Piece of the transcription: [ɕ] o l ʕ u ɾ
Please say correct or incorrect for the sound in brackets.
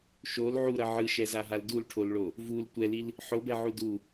incorrect